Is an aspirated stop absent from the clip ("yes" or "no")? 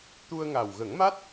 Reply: yes